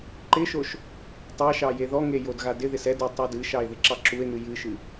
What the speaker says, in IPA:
ǃɪʃoʃ | tˤɑʃɑ jeðɔŋe jodɣadɪðɪs ɛdu tˤodɨʃɑe̯ ðɪǁɑǁue̯n̪ɨ jɨʃɨ

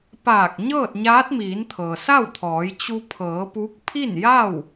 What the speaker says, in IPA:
paː˧˩k̚ ɲɤː˥˨t̚ɲaː˧˥t̚miː˩˧nt̪ʰɤː˩ sa˥˨wt̪ʰɔː˩˧j t͡ɕu˧pʰɤː˩˧ pu˧˥k̚ pʰi˥˨nja˥˨w

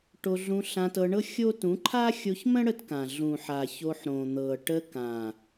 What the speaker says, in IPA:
ʈo˧ɮũ˧ ɬã˧tɤ˧ɳɤ˦ xʲo˦ tũ˨˦ǃʰa˦xʲo˧çmə̃˦ ɽə˦tkã˨ ɮũ˨ħa˨ ço˧ħɾõ˨n̪ɤ˨ ʈə˧kã˨

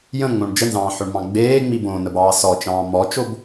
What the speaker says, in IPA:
jə̃ŋ͡mõɳ d͡ʒənzɑ̃ːħoɳmɑ̃ ɡ͡beːŋ͡mi bõnəbɑː sɔt͡ʃɑ̃ː mɔt͡ʃob

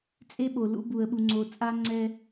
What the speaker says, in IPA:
t͡sʼe˦ɓo˨lṵ˦ bu˨ə̯ɓu˨ŋ͡ǀo˨ t͡sʼa˦ŋ͡ǀɛ˦

